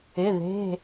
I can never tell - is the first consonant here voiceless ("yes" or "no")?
no